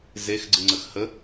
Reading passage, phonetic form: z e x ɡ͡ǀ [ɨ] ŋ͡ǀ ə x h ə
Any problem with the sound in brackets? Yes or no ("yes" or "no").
no